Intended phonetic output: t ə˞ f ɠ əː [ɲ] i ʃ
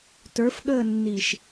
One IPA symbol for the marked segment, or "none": nː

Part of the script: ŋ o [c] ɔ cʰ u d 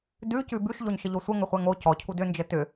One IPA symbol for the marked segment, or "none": c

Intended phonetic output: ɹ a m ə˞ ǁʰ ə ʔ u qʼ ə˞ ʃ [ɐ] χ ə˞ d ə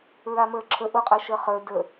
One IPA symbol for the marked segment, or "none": ə˞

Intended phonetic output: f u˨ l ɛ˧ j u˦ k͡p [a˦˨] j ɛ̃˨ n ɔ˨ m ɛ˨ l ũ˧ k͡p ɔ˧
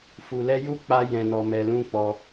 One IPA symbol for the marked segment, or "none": a˧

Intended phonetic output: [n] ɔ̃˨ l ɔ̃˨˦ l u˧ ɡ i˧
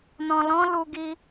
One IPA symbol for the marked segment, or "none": n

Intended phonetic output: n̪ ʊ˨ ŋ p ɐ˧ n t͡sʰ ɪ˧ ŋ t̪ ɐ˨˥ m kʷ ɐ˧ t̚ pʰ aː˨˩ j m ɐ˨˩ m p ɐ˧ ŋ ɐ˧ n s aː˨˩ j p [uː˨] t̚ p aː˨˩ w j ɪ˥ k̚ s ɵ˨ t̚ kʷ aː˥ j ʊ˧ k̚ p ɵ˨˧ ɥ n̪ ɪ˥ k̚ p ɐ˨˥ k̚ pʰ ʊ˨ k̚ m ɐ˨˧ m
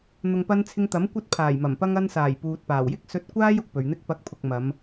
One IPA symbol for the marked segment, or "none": uː˨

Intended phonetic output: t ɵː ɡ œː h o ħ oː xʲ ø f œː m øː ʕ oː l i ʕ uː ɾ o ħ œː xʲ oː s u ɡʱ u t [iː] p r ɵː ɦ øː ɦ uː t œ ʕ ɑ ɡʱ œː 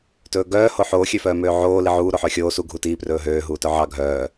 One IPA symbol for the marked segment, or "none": iː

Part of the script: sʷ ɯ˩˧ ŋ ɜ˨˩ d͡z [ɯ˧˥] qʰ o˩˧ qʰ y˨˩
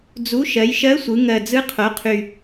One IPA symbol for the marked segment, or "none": ɯ˧˥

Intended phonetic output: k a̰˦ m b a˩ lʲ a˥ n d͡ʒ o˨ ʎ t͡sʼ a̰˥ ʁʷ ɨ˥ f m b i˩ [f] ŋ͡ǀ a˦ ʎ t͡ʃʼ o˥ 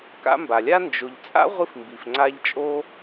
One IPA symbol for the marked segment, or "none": f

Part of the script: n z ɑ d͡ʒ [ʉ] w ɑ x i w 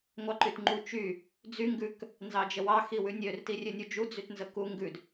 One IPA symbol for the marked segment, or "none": ə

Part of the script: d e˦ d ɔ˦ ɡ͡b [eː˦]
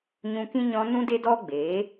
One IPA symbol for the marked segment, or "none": eː˨˦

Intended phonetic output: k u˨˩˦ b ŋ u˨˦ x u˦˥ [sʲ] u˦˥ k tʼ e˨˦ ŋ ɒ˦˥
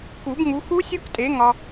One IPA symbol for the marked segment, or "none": sʲ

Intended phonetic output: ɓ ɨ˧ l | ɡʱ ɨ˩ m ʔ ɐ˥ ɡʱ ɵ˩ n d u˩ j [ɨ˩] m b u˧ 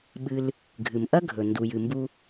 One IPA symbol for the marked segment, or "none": ɨ˩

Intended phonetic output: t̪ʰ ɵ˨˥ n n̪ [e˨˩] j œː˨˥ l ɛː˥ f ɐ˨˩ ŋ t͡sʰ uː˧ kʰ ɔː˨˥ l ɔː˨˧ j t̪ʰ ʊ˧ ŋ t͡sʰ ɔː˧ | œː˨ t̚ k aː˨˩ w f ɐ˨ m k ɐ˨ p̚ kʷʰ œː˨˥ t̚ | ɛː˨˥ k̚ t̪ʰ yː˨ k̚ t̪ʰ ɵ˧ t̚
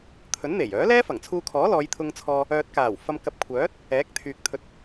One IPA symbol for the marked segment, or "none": e˨˩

